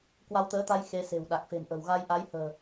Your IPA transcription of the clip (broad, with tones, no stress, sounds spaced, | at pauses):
k w a˧ w t̪ əː˨˦ t̪ a˧ j x e˨˦ s e̤˨˩ w ɗ a˨˩ k̚ f e̤˨˩ m ʔ ə̤˨˩ w ɣ a˧ j ʔ a˨˦ j h ə̤ː˨˩